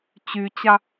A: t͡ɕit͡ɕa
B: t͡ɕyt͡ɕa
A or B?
B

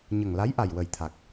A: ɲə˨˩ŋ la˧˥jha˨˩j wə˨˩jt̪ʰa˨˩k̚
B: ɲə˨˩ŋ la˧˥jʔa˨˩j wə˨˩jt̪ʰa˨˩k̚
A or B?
B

